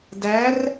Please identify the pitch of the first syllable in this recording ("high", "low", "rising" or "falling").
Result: rising